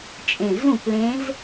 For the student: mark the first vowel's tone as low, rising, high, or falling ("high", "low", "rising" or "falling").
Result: low